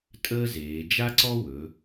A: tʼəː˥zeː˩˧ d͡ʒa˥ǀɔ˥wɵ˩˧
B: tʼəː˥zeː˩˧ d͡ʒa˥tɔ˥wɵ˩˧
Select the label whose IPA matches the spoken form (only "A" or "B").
A